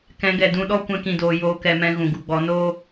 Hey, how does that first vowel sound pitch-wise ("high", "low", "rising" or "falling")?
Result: rising